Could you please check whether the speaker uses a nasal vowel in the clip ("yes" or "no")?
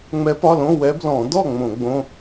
yes